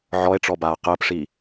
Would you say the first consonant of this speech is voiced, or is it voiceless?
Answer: voiced